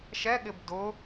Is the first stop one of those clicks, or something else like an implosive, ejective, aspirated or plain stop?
implosive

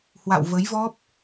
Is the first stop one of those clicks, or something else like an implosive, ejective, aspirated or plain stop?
plain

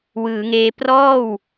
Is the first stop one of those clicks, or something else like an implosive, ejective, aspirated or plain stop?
plain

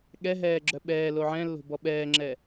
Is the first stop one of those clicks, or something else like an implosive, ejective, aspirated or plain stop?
implosive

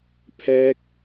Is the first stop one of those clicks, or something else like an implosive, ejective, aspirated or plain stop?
aspirated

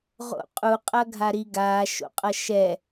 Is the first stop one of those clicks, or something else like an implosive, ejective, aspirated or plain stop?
ejective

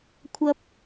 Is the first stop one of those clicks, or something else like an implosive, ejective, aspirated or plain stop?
aspirated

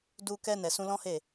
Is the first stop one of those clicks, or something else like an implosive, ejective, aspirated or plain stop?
plain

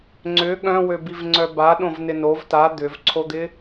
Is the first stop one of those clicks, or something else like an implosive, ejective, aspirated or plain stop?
click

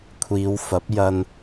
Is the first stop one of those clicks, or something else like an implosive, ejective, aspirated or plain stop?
aspirated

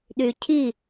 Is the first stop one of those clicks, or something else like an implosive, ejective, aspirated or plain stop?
implosive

